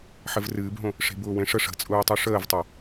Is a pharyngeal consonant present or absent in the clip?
present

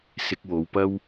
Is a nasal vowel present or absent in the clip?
absent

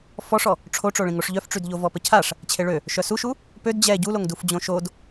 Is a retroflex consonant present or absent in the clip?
present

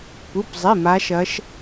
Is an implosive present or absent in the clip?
absent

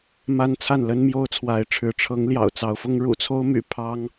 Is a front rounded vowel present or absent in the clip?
present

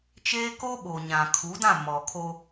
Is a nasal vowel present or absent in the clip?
present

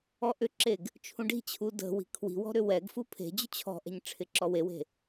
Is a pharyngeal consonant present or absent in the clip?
absent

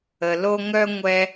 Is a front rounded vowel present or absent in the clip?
present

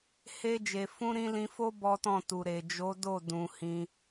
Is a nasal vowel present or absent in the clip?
present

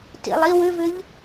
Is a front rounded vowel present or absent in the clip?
present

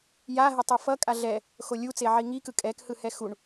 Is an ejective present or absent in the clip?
present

